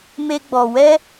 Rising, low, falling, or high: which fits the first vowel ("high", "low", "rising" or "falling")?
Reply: high